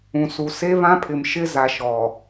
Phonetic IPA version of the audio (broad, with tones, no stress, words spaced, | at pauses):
ũ˨su˨ se˦βã˦pʰɪ˨mʃɪ˦ za˨ʃɔ˨